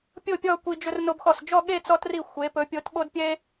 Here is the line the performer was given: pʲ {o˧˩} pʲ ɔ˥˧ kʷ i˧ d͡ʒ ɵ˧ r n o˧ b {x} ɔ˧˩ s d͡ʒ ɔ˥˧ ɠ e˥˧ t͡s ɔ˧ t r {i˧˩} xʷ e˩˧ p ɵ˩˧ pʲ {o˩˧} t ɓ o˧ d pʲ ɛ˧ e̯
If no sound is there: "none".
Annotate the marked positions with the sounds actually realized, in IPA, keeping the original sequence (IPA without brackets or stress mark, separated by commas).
o˥˧, x, i˧˩, o˩˧